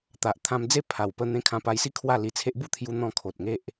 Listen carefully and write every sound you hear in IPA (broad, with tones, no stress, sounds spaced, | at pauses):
t̪ a˨ ʔ t̪ʰ ã˧ m d͡z e˦ pʰ a˨˩ w p ə˧ n̪ ẽ˧ kʰ ã˧ p a˧ j s i˦ kʰ w a˥˧ l i˧ t͡sʰ e˦ ʔ b u˥˧ t̪ʰ j u˧ n̪ ɔ̃˧ kʰ o˨ t̚ ŋ e˦ ʔ